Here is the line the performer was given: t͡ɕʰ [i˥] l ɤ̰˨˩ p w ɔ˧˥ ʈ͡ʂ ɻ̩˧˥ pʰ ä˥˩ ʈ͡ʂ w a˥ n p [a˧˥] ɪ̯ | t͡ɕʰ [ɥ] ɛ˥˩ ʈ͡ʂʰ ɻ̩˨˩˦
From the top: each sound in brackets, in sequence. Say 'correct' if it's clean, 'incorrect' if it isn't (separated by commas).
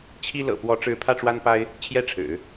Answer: correct, incorrect, incorrect